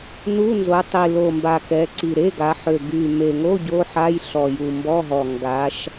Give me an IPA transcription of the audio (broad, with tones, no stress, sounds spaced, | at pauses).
n u˧˥˧ n z o˩˧ tˤ i˨˩ l o˨˩ m b a˨˩ k ɛ˩˧ ǀ i˨˩ ɾ e˧˥˧ ɡ a˩˧ ħ ø˨˩ ɡ y˨˩ m e˨˩ ŋ o˧˥˧ ɟ o˧˥˧ ħ a˧˥˧ j ɬ ɔ˨˩ j u˨˩ m b ɔ˧˥˧ ɦ ɔ˨˩ ŋ ɡ a˩˧ ʃ